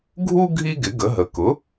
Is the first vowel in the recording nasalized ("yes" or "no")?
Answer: no